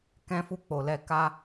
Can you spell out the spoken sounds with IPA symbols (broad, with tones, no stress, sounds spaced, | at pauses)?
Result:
k ɛ̃˦ f u˦˨ k͡p o˨ l ɛ˧ k a˧